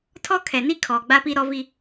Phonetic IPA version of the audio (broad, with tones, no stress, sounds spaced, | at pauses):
tʰ ɔ˦ kʰ ɛ˨ n i˦ kʰ ɔ˨ ɡ͡b a˦ p i˦ ɾ ɔ˦ v i˦